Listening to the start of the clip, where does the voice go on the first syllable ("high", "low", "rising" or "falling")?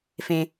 high